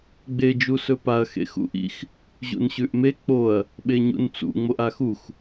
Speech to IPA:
ɡ͡b e d͡ʒ u s ɵ p a ɐ̯ x ḛ x ṵ ʔ ḭ x | ʑ ṵ n ɕ ʉ ʔ m e k͡p o ɐ̯ | ɓ e ɲ ṵ n t͡s ṵ ŋ͡m o ʔ a x u x

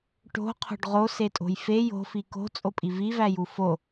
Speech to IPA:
ʈ o̤ qʰ o̤ ɖ ʁ o s e tʼ o̤ j f e j o̤ f i k o̤ t͡sʼ o pʼ i v i v æ j u f o

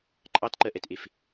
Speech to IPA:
ǃʼ ɑ t ǃ ɜ ʔ ɛ t ʔ e f

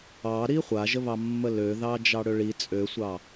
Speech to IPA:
ɑ ɾ i χʷ a ʒ ə β ɑ mː ə l ø ð ɑ d͡ʒ ɑ ɽ ø ɭ i t͡sʼ ø sʷ ɑ

